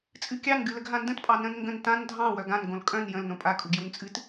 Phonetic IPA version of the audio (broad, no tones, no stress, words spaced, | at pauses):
t͡sʼɨkʲɑn ɡɨləɡɦãndə̃t pʼɑnə̃n ŋɡə̃n tãn dʱɑ̃ wœɡãn ɡõlkʼœ̃n jə̃l nõpʼa kʼuɡjunt͡sʼɨt